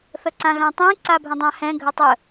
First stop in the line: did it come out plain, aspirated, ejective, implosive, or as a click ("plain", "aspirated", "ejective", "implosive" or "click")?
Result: click